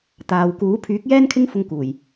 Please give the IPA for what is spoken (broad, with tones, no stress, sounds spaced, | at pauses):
t̪ aː˨ w k uː˨˥ pʰ yː˨˥ k̚ j ɛː˥ n kʰ ɪ˥ ŋ f ʊ˧ ŋ k uː˨˩ j